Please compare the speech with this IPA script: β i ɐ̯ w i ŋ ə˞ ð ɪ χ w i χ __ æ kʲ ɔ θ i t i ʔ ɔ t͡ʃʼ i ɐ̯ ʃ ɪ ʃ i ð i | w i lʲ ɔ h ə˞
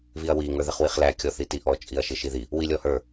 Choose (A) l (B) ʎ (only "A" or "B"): A